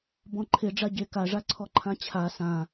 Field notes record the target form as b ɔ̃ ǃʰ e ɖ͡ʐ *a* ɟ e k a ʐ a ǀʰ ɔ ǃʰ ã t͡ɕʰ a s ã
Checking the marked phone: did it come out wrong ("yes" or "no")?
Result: no